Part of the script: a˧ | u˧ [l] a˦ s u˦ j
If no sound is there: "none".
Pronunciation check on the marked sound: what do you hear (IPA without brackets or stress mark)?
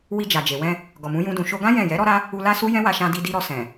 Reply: l